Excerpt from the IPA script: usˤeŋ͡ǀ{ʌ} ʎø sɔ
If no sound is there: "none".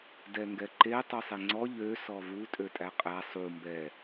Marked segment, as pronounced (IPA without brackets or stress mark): ɔ